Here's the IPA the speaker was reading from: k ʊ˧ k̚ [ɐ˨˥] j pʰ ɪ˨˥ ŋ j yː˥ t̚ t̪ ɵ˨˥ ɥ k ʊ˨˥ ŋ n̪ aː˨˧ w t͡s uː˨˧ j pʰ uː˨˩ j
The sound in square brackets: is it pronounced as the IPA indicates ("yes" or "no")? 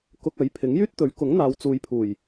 yes